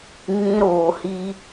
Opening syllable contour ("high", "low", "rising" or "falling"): high